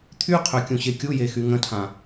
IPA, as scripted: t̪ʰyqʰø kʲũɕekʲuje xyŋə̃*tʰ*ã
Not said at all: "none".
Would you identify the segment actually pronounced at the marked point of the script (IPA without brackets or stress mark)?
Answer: tʰ